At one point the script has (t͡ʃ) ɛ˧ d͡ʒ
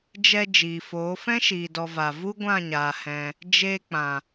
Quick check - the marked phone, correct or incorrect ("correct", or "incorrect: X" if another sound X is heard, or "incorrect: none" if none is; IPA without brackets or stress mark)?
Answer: incorrect: d͡ʒ